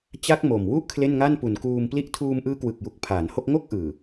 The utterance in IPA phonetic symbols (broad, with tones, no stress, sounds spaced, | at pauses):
t͡ɕ a˦˥ k̚ m o˨˩ m w u˥˩ ʔ kʰ l e˥˩ n ŋ a˥˩ n p u˨˩ n k uː˧ m p l i˥˩ ʔ tʰ uː˧ m ʔ ɯː˦˥ k w ɯ˨˩ k̚ j u˨˩ k̚ pʰ aː˩˦ n h o˥˩ k̚ ŋ o˥˩ k̚ ʔ ɯː˨˩